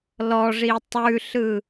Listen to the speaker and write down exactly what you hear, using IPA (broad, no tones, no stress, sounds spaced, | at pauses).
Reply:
l ɔ ʐ i tˤ ʉ ɬ ɯ